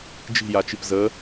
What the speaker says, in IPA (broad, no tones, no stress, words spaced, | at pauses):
d͡ʒi̤jat͡ʃip zə